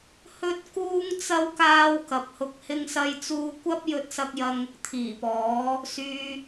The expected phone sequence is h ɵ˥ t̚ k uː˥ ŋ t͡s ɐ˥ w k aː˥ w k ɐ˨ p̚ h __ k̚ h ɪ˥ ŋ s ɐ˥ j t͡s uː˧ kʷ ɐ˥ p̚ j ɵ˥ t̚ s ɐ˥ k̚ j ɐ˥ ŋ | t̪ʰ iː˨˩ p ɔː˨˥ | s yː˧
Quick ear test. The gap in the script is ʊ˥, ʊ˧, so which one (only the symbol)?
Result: ʊ˧